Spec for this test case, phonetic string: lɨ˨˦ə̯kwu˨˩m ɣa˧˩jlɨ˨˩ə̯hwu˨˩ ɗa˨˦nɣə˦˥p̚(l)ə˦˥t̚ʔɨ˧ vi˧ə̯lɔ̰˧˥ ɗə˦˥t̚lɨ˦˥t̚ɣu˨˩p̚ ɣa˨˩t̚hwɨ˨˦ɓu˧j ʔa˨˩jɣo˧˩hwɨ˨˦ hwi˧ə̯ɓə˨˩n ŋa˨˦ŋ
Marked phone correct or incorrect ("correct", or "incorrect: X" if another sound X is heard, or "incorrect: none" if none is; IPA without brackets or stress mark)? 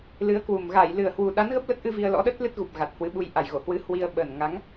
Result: correct